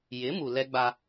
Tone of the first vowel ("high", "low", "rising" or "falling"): rising